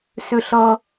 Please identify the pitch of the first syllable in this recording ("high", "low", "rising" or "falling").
low